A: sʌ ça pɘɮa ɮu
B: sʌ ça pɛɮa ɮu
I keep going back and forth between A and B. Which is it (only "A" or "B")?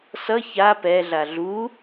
B